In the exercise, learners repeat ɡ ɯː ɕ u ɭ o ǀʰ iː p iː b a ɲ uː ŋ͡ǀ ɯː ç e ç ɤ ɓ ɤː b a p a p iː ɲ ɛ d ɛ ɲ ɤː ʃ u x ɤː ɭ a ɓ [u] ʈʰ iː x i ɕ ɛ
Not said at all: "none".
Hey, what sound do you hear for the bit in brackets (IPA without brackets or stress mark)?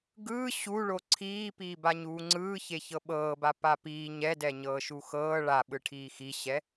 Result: ɯ